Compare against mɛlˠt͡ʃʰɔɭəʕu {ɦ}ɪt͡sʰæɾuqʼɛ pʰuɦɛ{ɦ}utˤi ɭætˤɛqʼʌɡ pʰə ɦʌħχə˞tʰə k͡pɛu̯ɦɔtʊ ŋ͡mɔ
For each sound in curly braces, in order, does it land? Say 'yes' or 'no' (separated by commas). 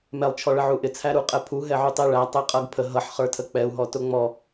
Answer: no, no